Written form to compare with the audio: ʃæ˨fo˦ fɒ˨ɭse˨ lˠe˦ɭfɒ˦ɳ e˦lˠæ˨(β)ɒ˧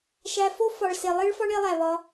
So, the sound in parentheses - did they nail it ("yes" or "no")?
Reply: yes